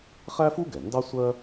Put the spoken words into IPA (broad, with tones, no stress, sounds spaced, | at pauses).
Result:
χ æ˥ f u˥ ɡ ɛ˩ n d ɑ˥ sʷ ɜ˥